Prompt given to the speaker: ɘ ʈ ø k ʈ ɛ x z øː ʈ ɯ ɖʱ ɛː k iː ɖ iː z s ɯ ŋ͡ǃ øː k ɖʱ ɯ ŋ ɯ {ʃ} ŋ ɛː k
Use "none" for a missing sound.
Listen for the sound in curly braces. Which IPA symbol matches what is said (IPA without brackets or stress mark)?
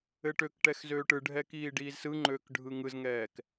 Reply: z